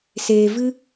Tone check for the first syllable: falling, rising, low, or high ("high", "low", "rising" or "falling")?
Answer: low